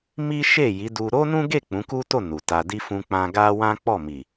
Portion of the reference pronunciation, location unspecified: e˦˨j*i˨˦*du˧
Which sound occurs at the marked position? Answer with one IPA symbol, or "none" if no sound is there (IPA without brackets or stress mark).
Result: i˨˦